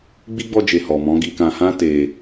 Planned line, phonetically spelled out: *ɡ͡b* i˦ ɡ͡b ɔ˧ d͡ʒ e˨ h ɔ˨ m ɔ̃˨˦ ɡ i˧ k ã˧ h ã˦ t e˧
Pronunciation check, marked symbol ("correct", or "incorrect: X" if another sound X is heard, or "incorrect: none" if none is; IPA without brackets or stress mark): correct